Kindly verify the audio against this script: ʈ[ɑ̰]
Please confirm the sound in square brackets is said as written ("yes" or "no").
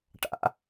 no